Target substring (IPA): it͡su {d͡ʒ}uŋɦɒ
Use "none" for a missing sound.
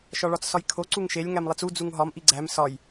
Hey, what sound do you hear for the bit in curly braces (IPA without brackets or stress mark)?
d͡z